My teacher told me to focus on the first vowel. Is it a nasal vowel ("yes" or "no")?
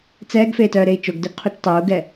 no